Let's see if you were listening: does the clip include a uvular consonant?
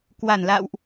no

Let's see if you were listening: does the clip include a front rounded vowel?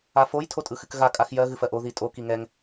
no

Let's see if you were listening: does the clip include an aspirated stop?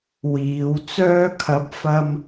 yes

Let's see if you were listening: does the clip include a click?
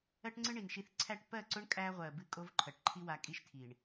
yes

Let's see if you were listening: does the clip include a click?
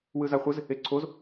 yes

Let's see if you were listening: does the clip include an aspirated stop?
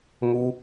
no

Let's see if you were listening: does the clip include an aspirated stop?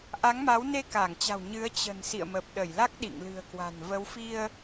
no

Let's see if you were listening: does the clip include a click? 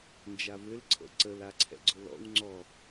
yes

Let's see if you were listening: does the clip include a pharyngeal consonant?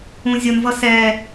no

